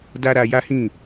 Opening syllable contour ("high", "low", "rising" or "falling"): high